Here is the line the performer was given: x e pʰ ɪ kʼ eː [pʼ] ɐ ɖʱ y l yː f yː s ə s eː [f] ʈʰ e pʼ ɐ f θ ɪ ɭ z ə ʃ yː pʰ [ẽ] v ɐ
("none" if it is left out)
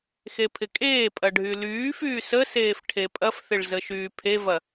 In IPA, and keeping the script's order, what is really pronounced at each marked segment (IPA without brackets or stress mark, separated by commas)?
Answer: pʼ, f, e